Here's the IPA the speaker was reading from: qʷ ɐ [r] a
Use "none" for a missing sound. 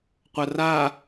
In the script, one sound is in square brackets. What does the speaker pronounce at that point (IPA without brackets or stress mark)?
r